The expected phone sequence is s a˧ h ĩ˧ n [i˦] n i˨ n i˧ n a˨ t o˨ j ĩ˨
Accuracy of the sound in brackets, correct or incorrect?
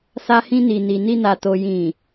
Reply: incorrect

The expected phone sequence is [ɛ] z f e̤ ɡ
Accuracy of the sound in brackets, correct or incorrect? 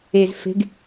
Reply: incorrect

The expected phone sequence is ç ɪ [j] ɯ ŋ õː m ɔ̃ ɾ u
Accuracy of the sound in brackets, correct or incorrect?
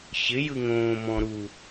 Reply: correct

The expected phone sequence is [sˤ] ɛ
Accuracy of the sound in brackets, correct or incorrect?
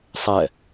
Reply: correct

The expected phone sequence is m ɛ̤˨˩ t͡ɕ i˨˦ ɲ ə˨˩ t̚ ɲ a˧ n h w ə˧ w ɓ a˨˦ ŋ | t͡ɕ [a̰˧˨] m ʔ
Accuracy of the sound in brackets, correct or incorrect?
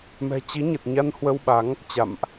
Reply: correct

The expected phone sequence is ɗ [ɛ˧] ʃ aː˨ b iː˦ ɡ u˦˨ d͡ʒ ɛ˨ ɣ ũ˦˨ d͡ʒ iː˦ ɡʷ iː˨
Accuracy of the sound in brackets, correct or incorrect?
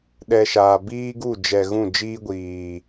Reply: correct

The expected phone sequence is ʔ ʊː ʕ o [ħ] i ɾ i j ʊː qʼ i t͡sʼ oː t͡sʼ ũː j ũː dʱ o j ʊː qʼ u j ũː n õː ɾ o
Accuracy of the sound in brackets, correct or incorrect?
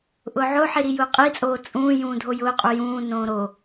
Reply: correct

